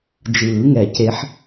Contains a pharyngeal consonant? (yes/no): yes